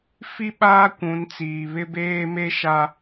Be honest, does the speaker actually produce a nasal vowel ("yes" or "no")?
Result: yes